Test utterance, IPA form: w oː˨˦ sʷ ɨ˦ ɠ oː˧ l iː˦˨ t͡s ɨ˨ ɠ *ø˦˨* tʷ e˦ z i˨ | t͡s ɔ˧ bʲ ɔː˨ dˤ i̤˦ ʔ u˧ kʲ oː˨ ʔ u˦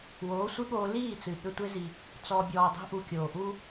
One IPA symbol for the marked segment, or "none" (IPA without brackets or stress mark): ø˧